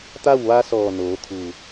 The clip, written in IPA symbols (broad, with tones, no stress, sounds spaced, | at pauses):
t̪ a˥˨ w ʋ a˧˥ s ɔː˧˩ n oː˩˧ t̪ʰ uː˧˩